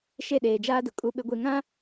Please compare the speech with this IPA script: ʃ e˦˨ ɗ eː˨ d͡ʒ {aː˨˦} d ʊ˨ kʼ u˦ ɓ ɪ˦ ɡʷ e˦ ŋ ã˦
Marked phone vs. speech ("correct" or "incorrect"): incorrect